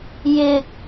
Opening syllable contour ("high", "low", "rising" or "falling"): low